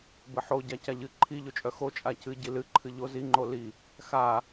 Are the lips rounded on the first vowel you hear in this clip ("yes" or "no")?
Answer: no